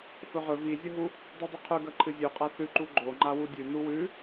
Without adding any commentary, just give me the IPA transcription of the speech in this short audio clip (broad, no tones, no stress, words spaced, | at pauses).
fɵʁɵ vizʲɐɦu | dˤudˤiqʰʉɡɐ ǃʰɨzʲʉqʼa θʉǃu ɡ͡ǃo ŋ͡ǃawudʲʉ nuwʉ